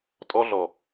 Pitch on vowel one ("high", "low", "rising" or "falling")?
high